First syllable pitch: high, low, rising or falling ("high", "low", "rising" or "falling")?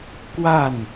falling